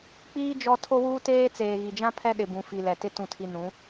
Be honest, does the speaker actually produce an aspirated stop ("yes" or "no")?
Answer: yes